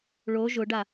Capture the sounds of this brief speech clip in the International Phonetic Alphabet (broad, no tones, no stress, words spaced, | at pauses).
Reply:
ɭo ʒʊɖa